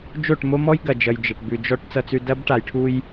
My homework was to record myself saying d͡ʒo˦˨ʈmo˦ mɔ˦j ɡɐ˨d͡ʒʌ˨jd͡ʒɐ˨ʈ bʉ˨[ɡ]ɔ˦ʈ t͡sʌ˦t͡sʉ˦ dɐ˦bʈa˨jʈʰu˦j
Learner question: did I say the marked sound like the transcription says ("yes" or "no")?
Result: no